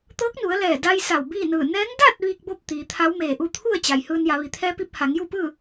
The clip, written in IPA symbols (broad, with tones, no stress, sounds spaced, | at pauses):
t̪ ɤː˧˥ k̚ n u˩˧ ə̯ l ɛː˧˩ d a˧ j s a˧˩ w b iː˥˨ n ɯː˧˩ n ɛː˧˥ ŋ d a˥˨ t̚ ʋ iː˧ k̚ b o˥˨ p̚ t̪ iː˩˧ t̪ʰ a˧˥ w m eː˧˩ ʔ u˥˨ t̪ʰ u˥˨ ə̯ t͡ɕ a˩ j h ɯː˧ n j a˩˧ ʋ i˩˧ t̪ʰ ɛː˧˥ p i˧ p̚ h a˩˧ ŋ j u˥˨ p ɯː˥˨